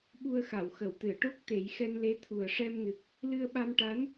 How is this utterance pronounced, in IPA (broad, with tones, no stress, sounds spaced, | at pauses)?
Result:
ɓ u˧ ə̯ x a˨˩˨ w x ə˨˩˨ w t̪ ɨ˨˩˨ ə̯ ʈ o˦˥ k̚ t̪ e˨˩˦ j x ɛ˧ n l e˧˥ t̪ʰ u˨˩ ə̯ ʂ ɛ˧ m n ɨ˨˩ k̚ | l ɨ˧ ə̯ ɓ a˧ m ʈ a˧˥ n